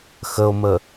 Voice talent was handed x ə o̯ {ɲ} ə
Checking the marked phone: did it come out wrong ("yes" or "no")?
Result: yes